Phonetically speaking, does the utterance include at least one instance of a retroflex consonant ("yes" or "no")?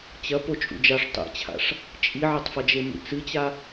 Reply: yes